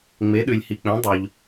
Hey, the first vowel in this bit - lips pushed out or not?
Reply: no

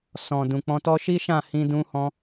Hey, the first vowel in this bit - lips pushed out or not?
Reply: yes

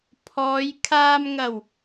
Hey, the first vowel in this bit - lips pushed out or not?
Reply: yes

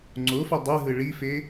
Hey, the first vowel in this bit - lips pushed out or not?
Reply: yes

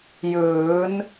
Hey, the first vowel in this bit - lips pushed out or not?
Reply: no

